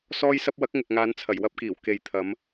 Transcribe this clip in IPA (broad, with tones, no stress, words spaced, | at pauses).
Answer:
sɔː˧jsɐ˧p̚wɐ˨˥k̚ ŋɪ˨k̚ŋaː˨˧nt͡sʰɐ˨˩j wɐ˧p̚kiː˨˩w ke˨j t̪ʰɐ˨˧m